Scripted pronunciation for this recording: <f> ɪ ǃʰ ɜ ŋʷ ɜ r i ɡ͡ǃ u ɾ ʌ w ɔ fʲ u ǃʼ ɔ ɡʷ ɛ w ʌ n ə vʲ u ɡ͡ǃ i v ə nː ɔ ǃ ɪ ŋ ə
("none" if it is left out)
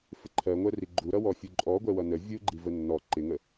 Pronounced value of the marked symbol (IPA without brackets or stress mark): f